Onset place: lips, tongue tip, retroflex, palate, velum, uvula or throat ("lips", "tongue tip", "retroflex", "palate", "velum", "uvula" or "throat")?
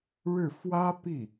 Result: retroflex